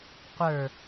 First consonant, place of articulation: uvular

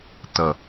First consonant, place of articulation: alveolar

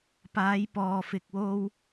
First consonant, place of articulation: labial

